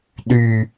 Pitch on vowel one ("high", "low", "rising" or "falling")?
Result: low